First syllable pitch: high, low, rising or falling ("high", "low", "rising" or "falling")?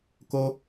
high